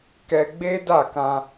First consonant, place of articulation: velar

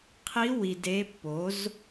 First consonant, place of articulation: uvular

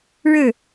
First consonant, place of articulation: retroflex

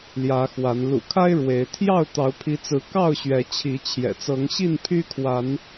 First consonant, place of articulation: alveolar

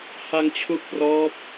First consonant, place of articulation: glottal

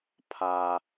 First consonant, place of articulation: labial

